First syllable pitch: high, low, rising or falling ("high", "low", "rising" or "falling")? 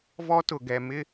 high